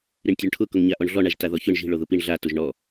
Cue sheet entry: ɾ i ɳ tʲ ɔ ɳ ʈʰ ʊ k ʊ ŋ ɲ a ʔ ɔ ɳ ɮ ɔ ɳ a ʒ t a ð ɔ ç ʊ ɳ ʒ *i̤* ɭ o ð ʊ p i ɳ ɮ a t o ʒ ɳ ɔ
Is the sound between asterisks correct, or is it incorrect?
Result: correct